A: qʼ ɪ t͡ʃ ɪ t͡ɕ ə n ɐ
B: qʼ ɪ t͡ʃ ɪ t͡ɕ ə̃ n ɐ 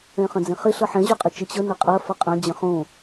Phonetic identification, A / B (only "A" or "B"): A